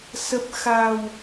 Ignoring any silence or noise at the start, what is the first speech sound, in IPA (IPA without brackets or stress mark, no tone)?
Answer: s